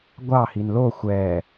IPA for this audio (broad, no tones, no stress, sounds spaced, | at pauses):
ɡʷ ɑ h i n l o xʷ ɛː